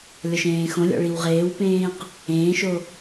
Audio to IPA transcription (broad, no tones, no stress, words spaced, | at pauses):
lʲɔʃẽːxõlʲɔ̰ ɭiwʁeːwpẽːq | ẽːʃo